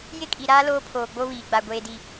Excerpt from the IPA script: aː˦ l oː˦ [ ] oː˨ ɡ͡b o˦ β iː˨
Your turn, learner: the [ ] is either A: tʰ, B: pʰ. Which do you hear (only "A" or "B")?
B